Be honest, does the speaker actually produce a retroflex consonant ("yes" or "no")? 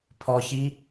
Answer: no